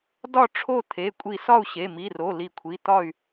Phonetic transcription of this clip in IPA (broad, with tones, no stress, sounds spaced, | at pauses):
d ɒ˥˨ ʈ͡ʂʰ o˥˨ t̪ʰ e˩˧˩ kʷʼ i˧˩ s ɒ˥˨ u̯ ɕ e˩˧˩ m i˩˧˩ r o˩˧˩ l i˧˩ kʷʰ i˩˧˩ t̪ ɒ˥˨ y̯